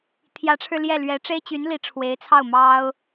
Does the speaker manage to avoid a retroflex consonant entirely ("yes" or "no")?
no